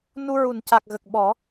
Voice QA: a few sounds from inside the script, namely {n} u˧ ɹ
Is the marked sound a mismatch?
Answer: no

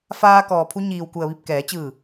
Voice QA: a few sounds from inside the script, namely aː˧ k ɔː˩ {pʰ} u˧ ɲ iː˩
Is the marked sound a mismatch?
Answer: no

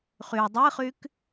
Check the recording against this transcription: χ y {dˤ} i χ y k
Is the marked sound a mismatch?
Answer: no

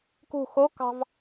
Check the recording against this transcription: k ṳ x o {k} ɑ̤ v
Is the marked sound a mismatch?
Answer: no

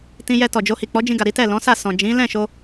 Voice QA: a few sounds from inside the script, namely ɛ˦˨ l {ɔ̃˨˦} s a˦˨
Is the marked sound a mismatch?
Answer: no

